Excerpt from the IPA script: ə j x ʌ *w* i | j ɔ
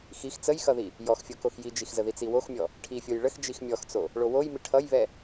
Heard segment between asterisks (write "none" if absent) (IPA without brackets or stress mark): ð